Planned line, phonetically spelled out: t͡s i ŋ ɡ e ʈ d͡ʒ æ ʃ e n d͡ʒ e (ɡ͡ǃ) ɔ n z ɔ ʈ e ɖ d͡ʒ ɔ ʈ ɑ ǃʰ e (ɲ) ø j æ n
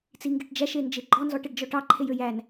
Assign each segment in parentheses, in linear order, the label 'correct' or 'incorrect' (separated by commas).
correct, incorrect